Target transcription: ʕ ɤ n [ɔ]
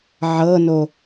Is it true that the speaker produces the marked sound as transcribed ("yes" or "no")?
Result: no